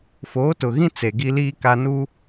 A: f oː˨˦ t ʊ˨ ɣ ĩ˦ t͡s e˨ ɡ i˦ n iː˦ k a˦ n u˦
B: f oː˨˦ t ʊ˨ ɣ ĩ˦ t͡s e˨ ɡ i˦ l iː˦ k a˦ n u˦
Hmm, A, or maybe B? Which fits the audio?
B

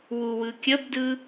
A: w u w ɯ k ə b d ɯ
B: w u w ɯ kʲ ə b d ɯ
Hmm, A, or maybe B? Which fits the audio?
B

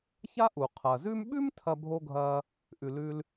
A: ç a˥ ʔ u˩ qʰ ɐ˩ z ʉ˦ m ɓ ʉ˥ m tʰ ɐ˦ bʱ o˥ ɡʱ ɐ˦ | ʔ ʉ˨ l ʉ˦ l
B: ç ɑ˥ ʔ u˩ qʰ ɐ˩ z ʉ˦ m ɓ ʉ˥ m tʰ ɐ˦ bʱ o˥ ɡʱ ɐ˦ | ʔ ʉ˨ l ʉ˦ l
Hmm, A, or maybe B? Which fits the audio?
A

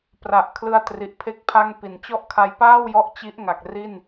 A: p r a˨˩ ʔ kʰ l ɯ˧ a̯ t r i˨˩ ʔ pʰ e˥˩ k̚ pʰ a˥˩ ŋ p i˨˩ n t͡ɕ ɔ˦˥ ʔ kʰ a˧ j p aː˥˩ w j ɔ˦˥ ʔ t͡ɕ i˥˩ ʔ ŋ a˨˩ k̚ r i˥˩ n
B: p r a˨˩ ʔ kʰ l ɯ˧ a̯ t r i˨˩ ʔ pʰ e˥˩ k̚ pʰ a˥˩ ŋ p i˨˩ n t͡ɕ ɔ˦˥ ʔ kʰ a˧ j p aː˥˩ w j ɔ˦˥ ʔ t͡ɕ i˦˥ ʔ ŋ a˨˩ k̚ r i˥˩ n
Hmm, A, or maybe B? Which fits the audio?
B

